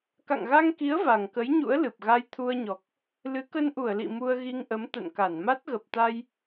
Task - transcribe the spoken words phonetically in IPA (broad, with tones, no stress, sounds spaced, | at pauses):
k a̰˧˨ ŋ ɣ a˧ ŋ k i˨˦ ə̯ v a˨˩ ŋ k ə˨˦ j ɲ ṵ˧˥ ə̯ l ɨ˨˩ p̚ ɣ a˧ j t̪ʰ u˧ ə̯ ɲ ɔ˨˩ k̚ | l ɨ˨˦ k ə˧ n ʔ u˧˩ ə̯ l ḭ˧˨ m u˧ ə̯ ɣ i˧ ŋ ʔ ə˨˦ m t̪ ə̰˧˨ n k a˧˩ n m a˦˥ t̚ ɣ ə˨˩ p̚ t̪ a˧ j